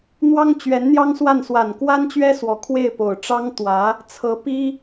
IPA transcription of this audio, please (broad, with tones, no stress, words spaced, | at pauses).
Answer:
n̪wɑ˥ŋt͡ɕɥɛ˧˥nn̪jɑ˥ŋswa˥˩n swa˨˩nkwa˥nt͡ɕɥɛ˥swɔ˨˩ kʰwe˥˩ɪ̯po˨˩ʊ̯ʈ͡ʂɑ˥ŋt̪wä˧˥ | t͡sʰɤ˧˥pi˥